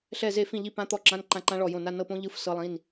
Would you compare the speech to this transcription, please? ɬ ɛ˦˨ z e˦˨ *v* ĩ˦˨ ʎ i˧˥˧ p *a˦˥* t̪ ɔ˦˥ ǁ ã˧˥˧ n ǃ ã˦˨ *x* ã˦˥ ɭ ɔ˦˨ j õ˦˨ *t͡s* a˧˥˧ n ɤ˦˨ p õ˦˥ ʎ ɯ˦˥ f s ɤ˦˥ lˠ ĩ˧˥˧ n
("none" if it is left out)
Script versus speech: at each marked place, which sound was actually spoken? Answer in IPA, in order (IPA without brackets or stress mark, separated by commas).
f, ã˦˥, ǃ, n